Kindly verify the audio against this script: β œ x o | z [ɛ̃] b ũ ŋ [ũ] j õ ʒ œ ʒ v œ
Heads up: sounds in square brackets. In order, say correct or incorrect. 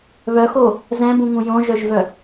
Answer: correct, correct

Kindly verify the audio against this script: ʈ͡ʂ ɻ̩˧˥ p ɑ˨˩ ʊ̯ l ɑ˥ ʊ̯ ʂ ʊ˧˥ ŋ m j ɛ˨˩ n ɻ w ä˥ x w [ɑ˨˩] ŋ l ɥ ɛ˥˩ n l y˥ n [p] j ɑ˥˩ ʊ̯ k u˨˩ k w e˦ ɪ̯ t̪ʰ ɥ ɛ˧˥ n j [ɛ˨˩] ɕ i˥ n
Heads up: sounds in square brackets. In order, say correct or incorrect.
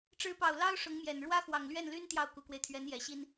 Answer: correct, incorrect: t̪, correct

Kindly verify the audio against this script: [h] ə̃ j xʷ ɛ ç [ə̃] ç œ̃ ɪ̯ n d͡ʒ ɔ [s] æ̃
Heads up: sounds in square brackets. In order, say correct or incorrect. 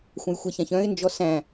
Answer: incorrect: xʷ, incorrect: ã, correct

